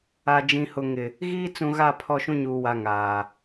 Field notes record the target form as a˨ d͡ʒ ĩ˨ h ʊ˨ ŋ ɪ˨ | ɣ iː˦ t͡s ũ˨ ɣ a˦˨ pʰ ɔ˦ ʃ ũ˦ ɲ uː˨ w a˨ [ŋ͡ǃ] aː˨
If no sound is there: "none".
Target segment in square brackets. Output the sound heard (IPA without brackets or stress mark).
ŋ